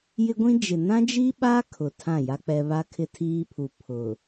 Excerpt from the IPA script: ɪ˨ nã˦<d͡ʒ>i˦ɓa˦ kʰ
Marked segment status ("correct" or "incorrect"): correct